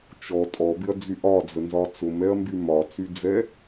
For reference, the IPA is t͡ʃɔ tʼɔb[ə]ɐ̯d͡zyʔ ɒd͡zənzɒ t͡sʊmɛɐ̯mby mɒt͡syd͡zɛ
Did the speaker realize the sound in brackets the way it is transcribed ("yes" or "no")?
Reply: no